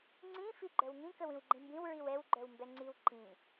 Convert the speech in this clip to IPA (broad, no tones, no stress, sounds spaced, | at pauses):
ŋ͡ǀ ĩ f i ɡ͡ǃ œ w ŋ ĩ k ə w ĩ w ɡ͡ǃ ĩ m b ĩ w ɹ i w ɛ w ɡ͡ǃ œ w m b ɛ ŋ͡ǀ i w ǃ ĩ